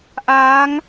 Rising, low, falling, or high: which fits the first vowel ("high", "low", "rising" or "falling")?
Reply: rising